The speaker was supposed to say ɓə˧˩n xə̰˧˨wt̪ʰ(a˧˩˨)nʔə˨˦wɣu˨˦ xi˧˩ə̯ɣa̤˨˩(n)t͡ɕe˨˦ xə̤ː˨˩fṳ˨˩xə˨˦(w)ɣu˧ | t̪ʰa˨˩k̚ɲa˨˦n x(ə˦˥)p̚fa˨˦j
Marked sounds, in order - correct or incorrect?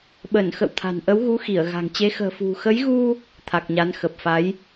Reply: incorrect: a̤˨˩, incorrect: ŋ, incorrect: j, incorrect: ə˨˩

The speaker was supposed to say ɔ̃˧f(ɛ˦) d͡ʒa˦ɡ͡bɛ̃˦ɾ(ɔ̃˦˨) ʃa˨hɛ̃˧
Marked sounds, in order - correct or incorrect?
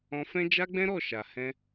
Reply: incorrect: ɛ̃˦, incorrect: ɔ˦˨

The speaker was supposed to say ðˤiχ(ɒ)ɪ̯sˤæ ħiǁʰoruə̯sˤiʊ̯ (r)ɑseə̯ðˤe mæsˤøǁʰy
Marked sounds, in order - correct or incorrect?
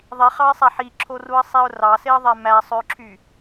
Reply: incorrect: ɑ, correct

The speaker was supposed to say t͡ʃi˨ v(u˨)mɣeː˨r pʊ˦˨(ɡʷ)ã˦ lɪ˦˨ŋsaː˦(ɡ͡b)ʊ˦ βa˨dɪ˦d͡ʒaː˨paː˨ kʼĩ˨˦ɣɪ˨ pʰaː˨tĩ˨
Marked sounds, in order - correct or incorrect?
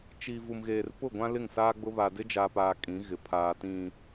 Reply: correct, correct, correct

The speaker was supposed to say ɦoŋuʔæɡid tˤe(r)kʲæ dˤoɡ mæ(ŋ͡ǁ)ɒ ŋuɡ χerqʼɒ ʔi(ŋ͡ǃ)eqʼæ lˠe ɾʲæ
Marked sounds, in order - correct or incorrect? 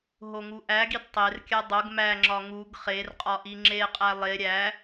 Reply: correct, correct, incorrect: ŋ͡ǁ

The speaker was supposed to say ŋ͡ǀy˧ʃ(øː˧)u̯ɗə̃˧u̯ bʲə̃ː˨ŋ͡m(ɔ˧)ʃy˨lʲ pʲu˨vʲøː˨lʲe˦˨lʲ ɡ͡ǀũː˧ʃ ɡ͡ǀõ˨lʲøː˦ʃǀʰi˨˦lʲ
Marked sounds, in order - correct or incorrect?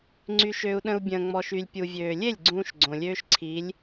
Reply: incorrect: ø˧, incorrect: ɔ˨

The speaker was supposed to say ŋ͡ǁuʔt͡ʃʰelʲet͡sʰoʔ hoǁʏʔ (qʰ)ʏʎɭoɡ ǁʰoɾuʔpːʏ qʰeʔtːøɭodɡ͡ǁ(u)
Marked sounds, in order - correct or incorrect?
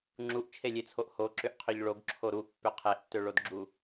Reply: correct, correct

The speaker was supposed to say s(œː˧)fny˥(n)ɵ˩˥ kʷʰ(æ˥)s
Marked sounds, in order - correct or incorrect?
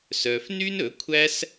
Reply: correct, correct, correct

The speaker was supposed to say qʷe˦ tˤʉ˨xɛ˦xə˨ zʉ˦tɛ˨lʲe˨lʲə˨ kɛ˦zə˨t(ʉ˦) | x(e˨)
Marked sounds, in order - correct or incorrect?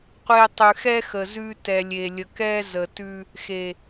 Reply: correct, correct

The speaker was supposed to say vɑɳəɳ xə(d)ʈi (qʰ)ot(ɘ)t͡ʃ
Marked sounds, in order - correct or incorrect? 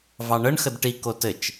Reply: correct, incorrect: k, correct

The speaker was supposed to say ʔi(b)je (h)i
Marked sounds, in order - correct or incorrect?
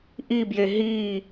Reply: correct, incorrect: ɦ

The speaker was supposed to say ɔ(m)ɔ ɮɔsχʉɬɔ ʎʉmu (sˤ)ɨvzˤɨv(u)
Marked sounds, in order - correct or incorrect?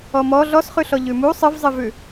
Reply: correct, correct, incorrect: ʉ

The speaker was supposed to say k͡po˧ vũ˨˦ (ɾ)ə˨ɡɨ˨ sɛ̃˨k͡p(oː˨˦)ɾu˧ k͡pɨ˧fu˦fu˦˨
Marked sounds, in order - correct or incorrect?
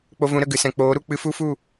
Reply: correct, correct

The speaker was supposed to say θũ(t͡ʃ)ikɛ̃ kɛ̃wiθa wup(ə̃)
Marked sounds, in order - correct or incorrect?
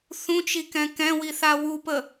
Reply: correct, incorrect: ə

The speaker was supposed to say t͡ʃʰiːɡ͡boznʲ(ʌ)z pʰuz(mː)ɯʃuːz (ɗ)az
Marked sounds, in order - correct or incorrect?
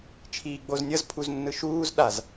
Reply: correct, incorrect: nː, correct

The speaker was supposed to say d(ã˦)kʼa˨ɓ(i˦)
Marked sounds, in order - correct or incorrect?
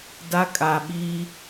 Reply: incorrect: a˦, correct

